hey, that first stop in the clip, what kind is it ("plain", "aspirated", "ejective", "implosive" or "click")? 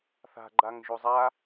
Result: click